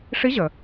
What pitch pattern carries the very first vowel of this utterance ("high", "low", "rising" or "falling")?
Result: rising